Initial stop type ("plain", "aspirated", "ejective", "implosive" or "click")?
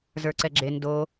click